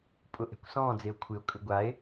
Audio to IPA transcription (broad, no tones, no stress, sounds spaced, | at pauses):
pʼ ʊ ʔ ɛ̤ kʷ s ɔ̃ː d͡z e o̯ kʷʰ ɪ o̯ kʼ ʏ ɡʷ a e̯